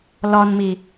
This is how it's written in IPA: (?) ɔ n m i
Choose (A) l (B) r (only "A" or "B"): A